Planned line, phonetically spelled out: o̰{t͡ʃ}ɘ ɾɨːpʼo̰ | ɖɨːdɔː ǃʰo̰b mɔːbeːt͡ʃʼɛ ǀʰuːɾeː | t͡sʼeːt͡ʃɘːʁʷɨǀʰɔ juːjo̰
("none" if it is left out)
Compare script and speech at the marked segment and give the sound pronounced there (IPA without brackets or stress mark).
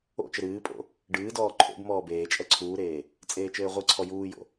t͡ʃ